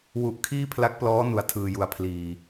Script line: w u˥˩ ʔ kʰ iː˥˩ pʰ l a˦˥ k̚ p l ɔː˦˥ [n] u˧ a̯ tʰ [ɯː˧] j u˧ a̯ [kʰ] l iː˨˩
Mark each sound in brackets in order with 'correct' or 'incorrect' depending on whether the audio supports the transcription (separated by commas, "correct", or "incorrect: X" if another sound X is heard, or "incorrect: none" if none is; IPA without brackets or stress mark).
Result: correct, correct, incorrect: pʰ